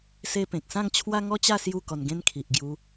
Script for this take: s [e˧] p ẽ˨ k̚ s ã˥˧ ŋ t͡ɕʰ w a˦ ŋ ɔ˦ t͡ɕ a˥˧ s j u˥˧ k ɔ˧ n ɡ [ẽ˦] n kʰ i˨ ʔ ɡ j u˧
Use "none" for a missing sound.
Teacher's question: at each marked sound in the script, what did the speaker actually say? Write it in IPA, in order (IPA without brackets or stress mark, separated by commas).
e˧, ẽ˦